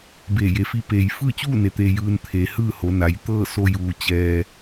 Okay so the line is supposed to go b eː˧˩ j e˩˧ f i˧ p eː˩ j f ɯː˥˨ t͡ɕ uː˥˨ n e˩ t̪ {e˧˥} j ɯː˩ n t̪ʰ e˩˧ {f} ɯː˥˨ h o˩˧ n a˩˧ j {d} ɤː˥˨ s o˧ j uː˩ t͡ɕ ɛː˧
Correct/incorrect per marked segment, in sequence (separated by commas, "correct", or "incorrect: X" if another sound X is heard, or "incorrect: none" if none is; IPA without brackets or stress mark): incorrect: e˩, incorrect: h, incorrect: t̪